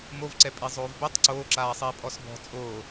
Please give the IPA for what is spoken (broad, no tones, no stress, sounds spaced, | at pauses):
m o v ǀ ɛ pʼ i zˤ oː v b e tˤ ǀ oː ǁ aː sˤ iː pʼ ɔ s b ɔ̤ t͡sʼ oː